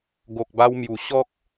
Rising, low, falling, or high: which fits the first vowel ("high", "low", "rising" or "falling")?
low